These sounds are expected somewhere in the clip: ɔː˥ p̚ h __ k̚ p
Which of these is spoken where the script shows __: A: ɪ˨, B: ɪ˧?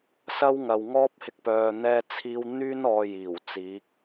B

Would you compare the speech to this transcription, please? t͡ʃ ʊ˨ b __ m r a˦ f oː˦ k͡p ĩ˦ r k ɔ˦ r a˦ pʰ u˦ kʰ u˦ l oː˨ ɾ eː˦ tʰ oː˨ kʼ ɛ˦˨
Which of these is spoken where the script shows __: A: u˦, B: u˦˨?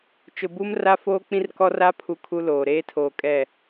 A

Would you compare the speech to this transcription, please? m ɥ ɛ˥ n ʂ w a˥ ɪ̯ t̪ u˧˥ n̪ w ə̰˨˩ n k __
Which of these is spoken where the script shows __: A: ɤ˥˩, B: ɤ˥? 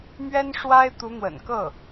A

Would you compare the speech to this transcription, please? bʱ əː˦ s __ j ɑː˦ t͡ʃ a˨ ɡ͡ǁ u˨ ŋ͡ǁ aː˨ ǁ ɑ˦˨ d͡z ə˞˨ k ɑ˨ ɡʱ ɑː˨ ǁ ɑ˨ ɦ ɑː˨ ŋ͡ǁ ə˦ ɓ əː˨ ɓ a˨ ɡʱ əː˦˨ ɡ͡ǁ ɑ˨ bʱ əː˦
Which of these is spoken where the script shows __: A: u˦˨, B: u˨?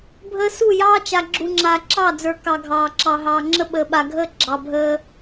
A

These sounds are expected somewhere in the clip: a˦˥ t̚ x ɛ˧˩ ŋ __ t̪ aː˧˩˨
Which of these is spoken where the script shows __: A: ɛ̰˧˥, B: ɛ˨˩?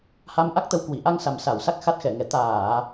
B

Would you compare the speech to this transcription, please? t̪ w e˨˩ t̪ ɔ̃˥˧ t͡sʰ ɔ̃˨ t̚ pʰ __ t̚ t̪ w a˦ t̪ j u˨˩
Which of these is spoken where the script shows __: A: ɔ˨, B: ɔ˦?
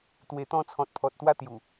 A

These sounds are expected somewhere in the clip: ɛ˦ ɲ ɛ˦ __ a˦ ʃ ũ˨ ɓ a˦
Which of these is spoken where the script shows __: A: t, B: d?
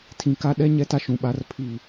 A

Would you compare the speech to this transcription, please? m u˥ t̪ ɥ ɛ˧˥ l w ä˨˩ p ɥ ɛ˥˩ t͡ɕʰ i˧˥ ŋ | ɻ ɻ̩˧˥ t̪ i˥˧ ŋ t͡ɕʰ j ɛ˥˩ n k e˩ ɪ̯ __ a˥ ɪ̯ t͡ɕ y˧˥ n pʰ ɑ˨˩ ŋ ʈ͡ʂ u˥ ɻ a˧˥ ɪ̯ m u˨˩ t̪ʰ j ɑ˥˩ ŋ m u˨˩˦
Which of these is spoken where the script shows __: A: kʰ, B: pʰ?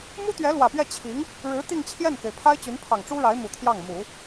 B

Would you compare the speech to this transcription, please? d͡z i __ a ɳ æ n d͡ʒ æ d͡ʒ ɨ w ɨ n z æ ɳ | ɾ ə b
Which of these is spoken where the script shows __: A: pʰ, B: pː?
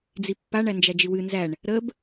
B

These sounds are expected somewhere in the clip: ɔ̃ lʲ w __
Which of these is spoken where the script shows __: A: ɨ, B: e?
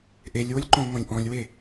B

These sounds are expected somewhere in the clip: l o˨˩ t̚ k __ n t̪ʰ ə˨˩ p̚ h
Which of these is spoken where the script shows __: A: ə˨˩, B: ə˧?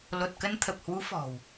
B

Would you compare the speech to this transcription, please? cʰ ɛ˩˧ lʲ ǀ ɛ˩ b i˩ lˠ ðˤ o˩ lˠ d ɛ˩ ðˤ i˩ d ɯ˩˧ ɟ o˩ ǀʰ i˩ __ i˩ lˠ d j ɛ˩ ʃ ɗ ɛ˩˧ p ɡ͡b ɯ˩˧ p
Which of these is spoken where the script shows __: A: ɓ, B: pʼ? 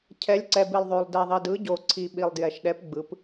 A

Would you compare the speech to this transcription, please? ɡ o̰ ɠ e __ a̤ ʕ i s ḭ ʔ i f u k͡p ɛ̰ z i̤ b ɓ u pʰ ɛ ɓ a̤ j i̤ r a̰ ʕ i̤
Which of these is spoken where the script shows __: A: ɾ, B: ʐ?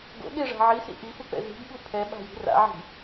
B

